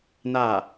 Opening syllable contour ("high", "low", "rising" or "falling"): falling